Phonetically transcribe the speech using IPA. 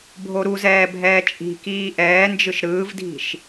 bʱoɾuzɛː bʱɛːt͡ʃʼi̤kiː ʔɛːnd͡ʒɯʃ ɾɯːvdʱi̤ʃ

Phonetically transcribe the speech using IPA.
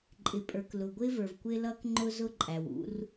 ǃʼɪ˨pʼə˞˨k lʊ˨ɡʷɪː˦və˞˨vkʷɪː˦ lʌː˦kŋ͡ǃʊ˦ zʊ˦ǃʼæ˨wṵ˦r

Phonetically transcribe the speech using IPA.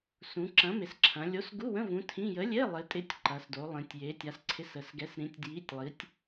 sũ˩˧ ǁɐ̃˨˥mɪ˩˧sǁʰɐ̃˩˧ lʲo˨˥sɡu˧˥˧wə̃˧˥˧ vũ˨˥tʰĩ˧˥˧ jə˨˥lʲe˧˥˧ lˠɪ˨˥tʼɪ˧˥˧tʲ ǃɐ˩˧s do˩˧lˠĩ˩˧tʲ je˩˧tʲa˩˧sǀʰɪ˨˥s ə˩˧sɡɛ˨˥s ɾĩ˨˥tʲdji˧˥˧tʲlˠi˨˥tʲ

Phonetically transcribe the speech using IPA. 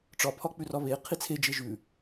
ʈ͡ʂɒpʰɒ k͡pʉrɒβe qʰit͡sʰe d͡ʒeʒʉ

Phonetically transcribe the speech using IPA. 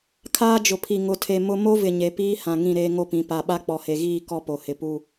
kʰaː˦d͡ʒʊ˨pʰi˨ ŋʊ˨tʰe˨ mʊ˦ mo˦vɪ˨ ɲe˨piː˦hã˨ŋĩ˦˨ ɾeː˦ŋo˦pĩ˨˦ pa˨ɓa˦ k͡pɔ˨he˨ɣiː˦˨ kɔ˦po˨ hɪ˨pu˦˨

